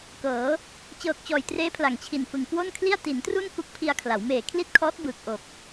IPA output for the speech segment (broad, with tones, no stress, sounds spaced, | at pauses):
k ɤː˩˦ | t͡ɕ ɤː˨˩ k̚ t͡ɕ ɔː˨˩ j t r eː˦˥ pʰ l a˨˩ ŋ t͡ɕʰ i˨˩ n f ɯ˨˩ ŋ k w o˥˩ n kʰ l i˥˩ a̯ t i˩˦ n t r u˥˩ n k u˦˥ k̚ pʰ i˧ a̯ kʰ l a˩˦ w m eː˨˩ kʰ l i˥˩ t̚ kʰ ɔː˦˥ t̚ b ɯː˨˩ k̚ ʔ o˨˩ k̚